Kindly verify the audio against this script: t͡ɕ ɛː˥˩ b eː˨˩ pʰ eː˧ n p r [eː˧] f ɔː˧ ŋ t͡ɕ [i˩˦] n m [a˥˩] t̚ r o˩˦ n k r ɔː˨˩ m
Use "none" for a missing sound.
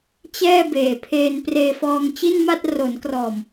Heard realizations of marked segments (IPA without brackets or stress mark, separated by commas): eː˧, i˥˩, a˥˩